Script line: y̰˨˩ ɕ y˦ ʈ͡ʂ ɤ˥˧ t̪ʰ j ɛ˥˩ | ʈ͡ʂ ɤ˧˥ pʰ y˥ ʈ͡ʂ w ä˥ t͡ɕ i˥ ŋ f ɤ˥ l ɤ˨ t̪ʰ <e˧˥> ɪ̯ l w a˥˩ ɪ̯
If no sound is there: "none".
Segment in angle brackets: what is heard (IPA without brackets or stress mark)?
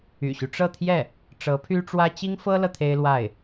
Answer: e˥